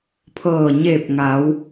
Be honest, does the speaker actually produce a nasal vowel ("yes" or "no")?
no